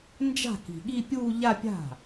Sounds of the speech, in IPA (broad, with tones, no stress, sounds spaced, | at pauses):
n d͡ʒ a̤˥˩ k i̤˨˩ ɠ i˥˧ pʲ uː˥˧ ʎ a˥˧ pʲ a̤˥˩